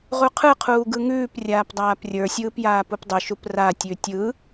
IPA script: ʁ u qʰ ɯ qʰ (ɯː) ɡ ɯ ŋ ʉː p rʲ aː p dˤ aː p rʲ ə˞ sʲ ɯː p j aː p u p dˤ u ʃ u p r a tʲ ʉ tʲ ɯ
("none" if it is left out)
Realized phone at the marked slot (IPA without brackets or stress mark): uː